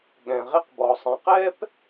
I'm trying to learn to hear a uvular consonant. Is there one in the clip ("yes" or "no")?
yes